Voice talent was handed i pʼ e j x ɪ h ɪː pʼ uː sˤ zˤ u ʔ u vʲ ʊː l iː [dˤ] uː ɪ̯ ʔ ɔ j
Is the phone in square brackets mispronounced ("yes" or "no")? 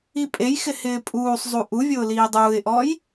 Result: no